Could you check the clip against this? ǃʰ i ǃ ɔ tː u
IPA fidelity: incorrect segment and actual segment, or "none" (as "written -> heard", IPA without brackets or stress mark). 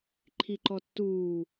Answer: u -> uː